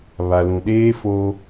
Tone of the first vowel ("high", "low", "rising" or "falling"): low